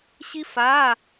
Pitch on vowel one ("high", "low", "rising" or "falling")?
high